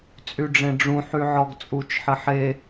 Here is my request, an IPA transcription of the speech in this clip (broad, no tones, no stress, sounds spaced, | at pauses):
t͡sʼ y ɖ͡ʐ ẽ ɖ͡ʐ ũ ħ y ʕ ɔ ɡ t͡sʼ u t͡ʃ ħ ɘ ħ e